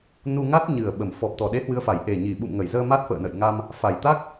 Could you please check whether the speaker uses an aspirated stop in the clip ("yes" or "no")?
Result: no